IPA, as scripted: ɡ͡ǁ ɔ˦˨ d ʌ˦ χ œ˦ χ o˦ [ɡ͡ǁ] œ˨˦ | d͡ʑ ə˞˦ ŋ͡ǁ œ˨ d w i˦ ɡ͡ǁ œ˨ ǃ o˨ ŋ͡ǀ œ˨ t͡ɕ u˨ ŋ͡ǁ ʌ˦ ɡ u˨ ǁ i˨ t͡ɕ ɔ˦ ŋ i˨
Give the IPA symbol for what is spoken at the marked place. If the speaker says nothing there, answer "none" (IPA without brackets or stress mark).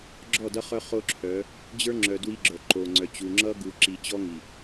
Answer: ǁʰ